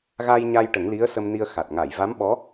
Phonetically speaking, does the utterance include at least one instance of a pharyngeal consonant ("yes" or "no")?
no